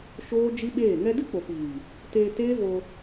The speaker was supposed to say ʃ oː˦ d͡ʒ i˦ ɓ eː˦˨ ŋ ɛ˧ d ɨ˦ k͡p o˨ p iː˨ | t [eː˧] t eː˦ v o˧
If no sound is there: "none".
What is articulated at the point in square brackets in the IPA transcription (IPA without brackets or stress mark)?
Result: eː˧